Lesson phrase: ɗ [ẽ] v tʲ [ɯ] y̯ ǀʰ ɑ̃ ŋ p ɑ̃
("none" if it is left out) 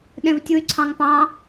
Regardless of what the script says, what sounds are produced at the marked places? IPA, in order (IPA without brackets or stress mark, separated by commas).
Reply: ẽ, u